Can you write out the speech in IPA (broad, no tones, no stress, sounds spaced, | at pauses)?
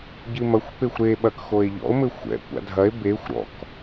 ɟ ɨ m ɐ xʷ p e xʷ ɾ e ɓ ɐ k x o e̯ ʎ ɔ̰ o̯ m ɘ xʷ ɛ̰ kʷ a̰ dʱ ɐ e̯ b e xʷ ɾ ɔ̰ k